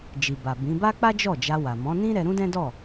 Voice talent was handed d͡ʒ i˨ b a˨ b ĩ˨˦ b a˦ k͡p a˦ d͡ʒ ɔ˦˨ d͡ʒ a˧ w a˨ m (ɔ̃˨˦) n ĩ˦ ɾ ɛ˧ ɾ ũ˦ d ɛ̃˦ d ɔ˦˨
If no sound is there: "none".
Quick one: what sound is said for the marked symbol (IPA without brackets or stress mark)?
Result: ɔ̃˨˦